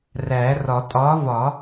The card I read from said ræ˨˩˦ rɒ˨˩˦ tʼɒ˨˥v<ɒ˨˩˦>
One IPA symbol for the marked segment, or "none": ɒ˨˩˦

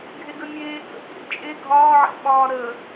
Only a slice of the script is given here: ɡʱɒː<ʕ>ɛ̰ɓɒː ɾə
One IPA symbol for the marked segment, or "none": ʕ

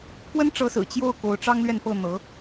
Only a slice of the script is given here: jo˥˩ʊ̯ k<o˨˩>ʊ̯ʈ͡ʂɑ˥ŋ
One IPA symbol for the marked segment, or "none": o˧˥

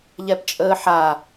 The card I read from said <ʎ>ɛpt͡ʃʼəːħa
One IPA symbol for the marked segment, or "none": ʎ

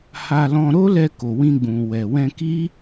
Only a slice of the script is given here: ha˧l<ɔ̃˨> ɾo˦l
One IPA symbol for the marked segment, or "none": ɔ̃˧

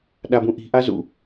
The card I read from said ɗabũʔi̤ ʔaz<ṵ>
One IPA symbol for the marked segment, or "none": ṵ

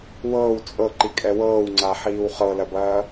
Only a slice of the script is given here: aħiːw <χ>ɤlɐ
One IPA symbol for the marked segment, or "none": χ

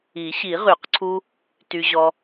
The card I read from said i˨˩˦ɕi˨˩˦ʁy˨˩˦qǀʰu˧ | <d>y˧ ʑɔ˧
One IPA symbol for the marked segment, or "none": t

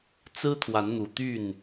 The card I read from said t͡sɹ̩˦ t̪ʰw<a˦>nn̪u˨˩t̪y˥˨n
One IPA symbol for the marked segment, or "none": a˨˦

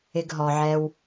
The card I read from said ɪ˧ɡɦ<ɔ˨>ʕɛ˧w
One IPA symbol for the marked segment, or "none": ɔ˨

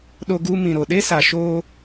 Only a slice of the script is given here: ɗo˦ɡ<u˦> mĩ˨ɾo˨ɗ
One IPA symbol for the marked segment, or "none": u˦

